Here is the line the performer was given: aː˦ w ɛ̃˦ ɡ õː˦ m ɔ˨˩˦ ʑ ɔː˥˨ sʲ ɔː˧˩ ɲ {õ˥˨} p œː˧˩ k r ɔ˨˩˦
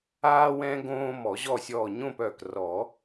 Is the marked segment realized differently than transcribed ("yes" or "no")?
no